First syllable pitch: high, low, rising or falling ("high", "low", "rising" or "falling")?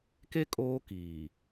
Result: high